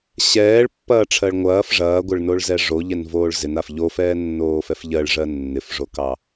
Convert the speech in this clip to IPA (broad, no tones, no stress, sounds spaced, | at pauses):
ɕ ɛː ɭ pː ɐː ʈ͡ʂʰ ɜ ɭ ŋʷ ɐː f ʐ ɐː ɡʷ ɪ ɭ n o ɭ z ɛ ʐ o ʎ ɛ n v oː ɭ z ɪ n a f ʎ o f ɛː nː oː f ɛ f ʎ ɜ ɭ ʐ ɜ nː ɪ f ʐ o k ɑ